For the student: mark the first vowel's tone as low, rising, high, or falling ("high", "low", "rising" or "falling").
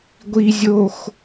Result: low